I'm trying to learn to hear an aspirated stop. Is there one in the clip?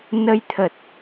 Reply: yes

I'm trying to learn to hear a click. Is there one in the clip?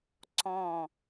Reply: yes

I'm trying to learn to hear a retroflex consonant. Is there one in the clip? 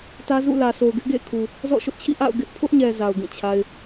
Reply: no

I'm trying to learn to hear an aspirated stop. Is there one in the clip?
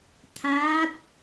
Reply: yes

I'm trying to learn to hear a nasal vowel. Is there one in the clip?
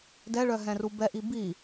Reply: yes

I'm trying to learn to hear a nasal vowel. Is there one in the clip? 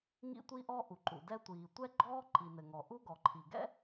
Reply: no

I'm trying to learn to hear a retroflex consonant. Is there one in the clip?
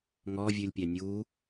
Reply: no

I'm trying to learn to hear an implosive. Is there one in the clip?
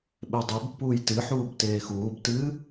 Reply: yes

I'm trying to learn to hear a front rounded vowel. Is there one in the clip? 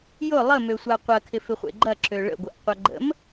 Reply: yes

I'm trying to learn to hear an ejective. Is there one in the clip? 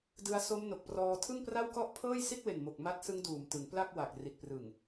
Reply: no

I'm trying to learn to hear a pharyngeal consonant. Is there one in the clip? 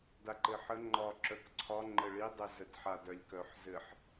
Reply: yes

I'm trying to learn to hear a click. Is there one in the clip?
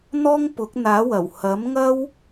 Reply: no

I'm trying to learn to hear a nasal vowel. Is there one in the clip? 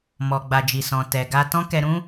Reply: yes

